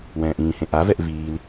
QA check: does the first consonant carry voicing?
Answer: yes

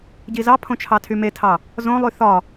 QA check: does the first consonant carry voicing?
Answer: yes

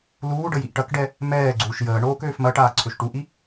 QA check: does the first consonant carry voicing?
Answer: yes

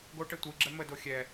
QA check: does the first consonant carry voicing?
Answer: yes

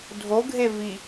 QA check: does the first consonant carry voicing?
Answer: yes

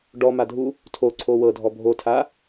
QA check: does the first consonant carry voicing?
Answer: yes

